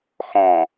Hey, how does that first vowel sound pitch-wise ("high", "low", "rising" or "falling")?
low